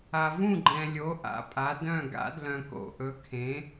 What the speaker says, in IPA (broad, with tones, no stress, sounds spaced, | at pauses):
a˨ v ũ˥˩ ɡ͡ǃ ɛ̃˨ lʲ o˩˥ ʔ a̰˩˥ pʼ a˩˥ d œ̃˥˩ ɡ a̰˩˥ d l œ̃˨ k o̰˨ ʔ ɵ˩˥ kʰ ẽ˩˥